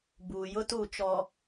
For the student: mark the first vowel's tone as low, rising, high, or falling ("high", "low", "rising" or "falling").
low